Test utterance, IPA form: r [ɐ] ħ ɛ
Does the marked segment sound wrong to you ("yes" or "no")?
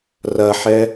no